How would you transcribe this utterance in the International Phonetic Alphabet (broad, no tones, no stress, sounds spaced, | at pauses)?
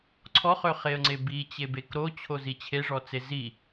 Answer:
ǀʰ ɔ χ ø χ e ə̯ ŋ͡ǀ e b i t͡ɕ e b e k ɾ o t͡ɕʰ o z i t͡ɕʰ e ʐ ɔ t͡s e z i